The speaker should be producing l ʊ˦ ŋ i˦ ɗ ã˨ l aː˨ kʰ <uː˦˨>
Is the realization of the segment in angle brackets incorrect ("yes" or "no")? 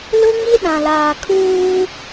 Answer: yes